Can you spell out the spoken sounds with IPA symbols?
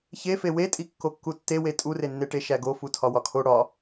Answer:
ç e f e w e tʼ i kː o kː u tː e w e tʼ u r e nː e ʈ e ʃ æ ɡ o f u tʰ ɒ w ɒ kʰ o ɽ ɒ

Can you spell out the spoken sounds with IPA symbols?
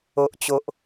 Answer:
o˦ ʔ t͡ɕ o˦ ʔ

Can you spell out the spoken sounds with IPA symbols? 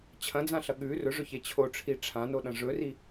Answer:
t͡ɕʰ ɐ̃ d͡z ã ɬ ɐ ɠ ʉ r ɵ ʐ ɵ ç e t͡ɕʰ o ʈ͡ʂʰ i ʈ͡ʂʰ ã n o ɗ ɐ̃ ʐ ɵ r i

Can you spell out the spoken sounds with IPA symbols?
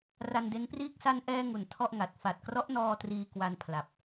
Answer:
r a˧ n d e˦˥ n p r iː˥˩ k̚ s a˧ n ʔ ɛː˧ ŋ u˨˩ n tʰ ɔ˥˩ ʔ ŋ a˨˩ t̚ f a˨˩ t̚ k r ɔ˦˥ ʔ n ɔː˧ t r iː˧ k w a˧ n pʰ l a˨˩ p̚

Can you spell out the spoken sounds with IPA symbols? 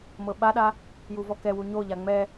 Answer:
m ɤ ɓ a ɗ a | j u v ɔ k ɛ w u ɲ o ʎ a ŋ͡m ɛ

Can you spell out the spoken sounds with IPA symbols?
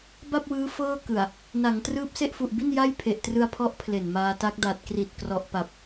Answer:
b a˥˩ p̚ w ɯː˦˥ f ɤː˥˩ k ɯ˨˩ a̯ | n a˩˦ ŋ t r ɯː˦˥ p̚ s e˥˩ ʔ f u˨˩ ʔ b i˥˩ n j a˥˩ j pʰ e˨˩ ʔ t r ɯ˧ a̯ pʰ ɔ˦˥ ʔ pʰ l e˨˩ n m aː˧ t a˦˥ k̚ d a˨˩ t̚ k r i˨˩ t̚ k r ɔ˨˩ ʔ p a˨˩ p̚

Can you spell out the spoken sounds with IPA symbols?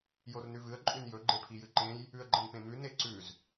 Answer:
j o r n ʉ v ɨ ə̯ ǃʼ ʉ n j ɵ ɡ͡ǃ e pʰ i j ɨ ǃ ẽ j | ʉ ə̯ ɡ͡ǃ ɐ n p ẽ m ʉ n e ǀ ʉ z

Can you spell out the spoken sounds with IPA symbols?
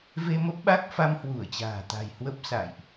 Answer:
v e˧ m ə˦˥ p̚ ɓ a˦˥ k̚ f a˧ m h w u˧˩ ə̯ t͡ɕ a̤ː˨˩ t̪ a̤˨˩ j h w ə˦˥ p̚ s a̰˧˨ j ʔ

